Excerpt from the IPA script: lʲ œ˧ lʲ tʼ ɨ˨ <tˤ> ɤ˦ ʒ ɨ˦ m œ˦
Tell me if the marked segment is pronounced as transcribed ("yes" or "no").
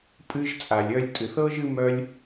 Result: no